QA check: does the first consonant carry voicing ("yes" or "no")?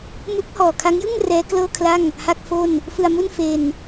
yes